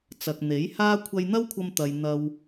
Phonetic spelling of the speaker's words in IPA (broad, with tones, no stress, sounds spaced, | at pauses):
t͡s ɐ˨ k̚ n̪ e˨˥ j h aː˥ kʷʰ ɐ˧ j n̪ ɐ˥ w kʷʰ ɐ˧ m t̪ ɐ˨ j n̪ ɐ˧ w